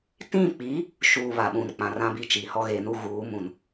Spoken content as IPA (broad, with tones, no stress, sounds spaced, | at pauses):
t ĩ˦˨ k͡p i˨˦ | ʃ uː˨ β a˨ ɓ ũ˨ n k͡p ã˨ r ã˦ b i˦ t͡ʃ iː˨ h ɔ˦ ɣ eː˨ n u˦ ɣ uː˨˦ m ũ˨ n